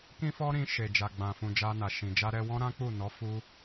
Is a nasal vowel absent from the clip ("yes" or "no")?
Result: no